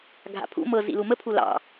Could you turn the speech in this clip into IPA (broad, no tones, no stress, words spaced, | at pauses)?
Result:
ɡʱa̰pʰṵ mɤ zḭlumə pʰulɑ̰